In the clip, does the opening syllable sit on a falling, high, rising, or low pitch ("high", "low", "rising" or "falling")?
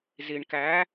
low